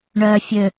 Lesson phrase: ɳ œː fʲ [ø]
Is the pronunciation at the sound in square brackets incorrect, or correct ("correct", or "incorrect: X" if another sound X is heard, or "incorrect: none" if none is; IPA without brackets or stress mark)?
correct